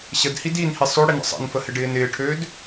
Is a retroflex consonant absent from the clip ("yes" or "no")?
no